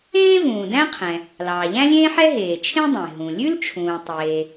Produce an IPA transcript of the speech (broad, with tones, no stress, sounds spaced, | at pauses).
ẽː˥ v ũː˩ d æ̃˥ qʰ ɛ̃˩ | l ɑː˩ ʎ æ̃˥ lʲ ẽː˥ ħ ɛ˥ ɦ eː˩ t͡ʃʰ ẽ˥ dˤ ẽ˩ ɦ ũ˩ lʲ ʉ˥ l t͡ʃʰ ũː˩ tˤ eː˩